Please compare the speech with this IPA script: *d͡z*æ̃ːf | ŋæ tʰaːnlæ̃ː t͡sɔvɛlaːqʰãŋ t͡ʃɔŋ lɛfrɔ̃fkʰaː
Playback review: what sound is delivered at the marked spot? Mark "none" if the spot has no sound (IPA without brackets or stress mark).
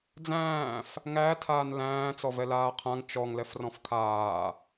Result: d͡z